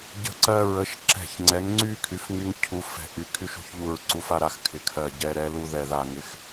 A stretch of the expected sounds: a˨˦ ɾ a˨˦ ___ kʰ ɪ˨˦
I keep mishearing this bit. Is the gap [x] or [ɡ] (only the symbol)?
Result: x